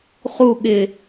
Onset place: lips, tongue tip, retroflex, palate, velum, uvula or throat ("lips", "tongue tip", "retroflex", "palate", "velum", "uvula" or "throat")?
uvula